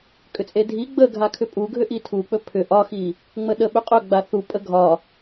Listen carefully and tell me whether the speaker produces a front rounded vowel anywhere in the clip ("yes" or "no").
yes